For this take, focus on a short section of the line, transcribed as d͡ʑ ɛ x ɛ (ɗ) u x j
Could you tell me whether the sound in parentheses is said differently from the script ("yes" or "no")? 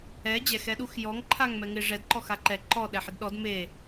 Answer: no